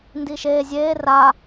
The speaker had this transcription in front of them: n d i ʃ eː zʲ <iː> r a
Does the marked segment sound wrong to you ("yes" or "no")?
yes